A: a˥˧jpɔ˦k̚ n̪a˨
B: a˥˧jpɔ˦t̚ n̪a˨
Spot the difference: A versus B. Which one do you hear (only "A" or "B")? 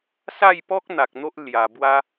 A